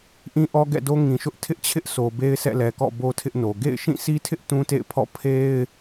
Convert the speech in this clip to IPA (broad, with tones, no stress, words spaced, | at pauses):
ʔĩ˦ʔɔ˦ɡɛ̰˦˨do˦ ŋĩ˨ʃʊ˦ʔ tʰɪ˦ʔt͡ɕʰɪ˦ʔ sʰo˨ be˦ɪ̯sʰɛ̰˦˨lɛ˨kɔ̰˦˨ bo˦tʰɪ˦ʔno˨ ɡḛ˦˨ɪ̯ ʃĩ˦˨si˦tʰɪ˦ʔ tũ˦tḛ˦˨ɪ̯ pʰɔ̰˦˨ pʰe˦ɪ̯